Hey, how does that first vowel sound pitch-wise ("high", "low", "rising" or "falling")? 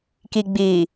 low